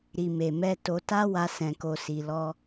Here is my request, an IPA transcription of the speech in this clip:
ɾ i˨ m e˨ m ɛ˧ t o˧ t a˦ w a˧ s ɛ̃˨ k o˨ s i˨ l ɔ˧

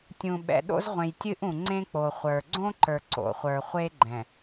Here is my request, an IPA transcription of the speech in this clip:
tʲ ũ˨ ɓ ɛ̰˨ ɗ o̰˦ z ʁʷ ẽ˨ j tʲ ɨ˦ ʔ ũ˨ ŋ͡ǀ ẽ˦ k͡p o˨ χʷ ə˞˨ ɡ͡ǀ õ˦ ǃ ə˞˨ ǀ o̰˨ χʷ ə˞˨ χʷ e˦ ɡ͡ǃ ɛ̃˨

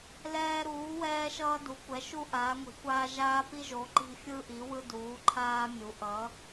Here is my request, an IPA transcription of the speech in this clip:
l ɛː˦ ɾ uː˨˦ w ɛː˦ ʃ ʌː˦ d u˨˦ kʷ ɛ˨˦ ʃ u˦ ʔ aː˨˦ ŋʷ i̤˨˦ kʷ aː˦ ʒ aː˦ p i˦ ʒ o˨˦ ǃ i̤˦ fʲ ɯ˦ ʔ i˨˦ w ɯ˦ d uː˨˦ ǃʰ aː˦ mʲ u˨˦ ʔ ʌ˨˦

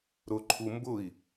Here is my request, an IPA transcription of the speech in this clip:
ɾ ʊ ǃʰ u m b ʊ i̯

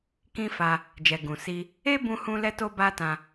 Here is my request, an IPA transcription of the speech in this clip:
k ĩ˧ f a˧ | d͡ʒ ɛ˨ ɡ ũ˨ s i˧ | e˦ b ũ˧ h ũ˧ l ɛ˦ t o˦ b a˦ t ã˧

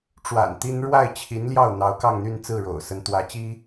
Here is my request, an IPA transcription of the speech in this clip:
ʈ͡ʂ w a̰˨˩ n t̪ i˥ n ɻ w a˥˩ ɪ̯ t͡ɕʰ i˧˥ n l j ɑ˥˩ ʊ̯ n̪ ɑ˧˥ ʊ̯ k ɑ˥˧ ŋ n̪ y˥˧ n t͡s ɹ̩˥˩ ɻ o̰˨˩ ʊ̯ s ə˧˥ n t̪ w ä˧˥ t͡ɕ i˥

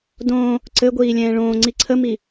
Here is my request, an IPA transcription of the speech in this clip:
d õː | ǀ ɘ ɡʷ iː lʲ ɛ̃ː ɭ õː ŋ͡ǀ i ǀʰ ə m i

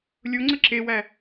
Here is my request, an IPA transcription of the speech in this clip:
lʲ o ŋ͡ǀ ə ǁ e w æ

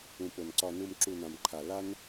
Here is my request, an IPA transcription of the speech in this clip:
ũ˨ p o˨ n ǀ ɒ˨ n u˨ m ǁ u˨ n ã˨ m ǃʰ a˨ l a˦ n

